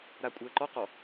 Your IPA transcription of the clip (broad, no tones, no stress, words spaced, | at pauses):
ɾakʷʼəːǃɔqɔ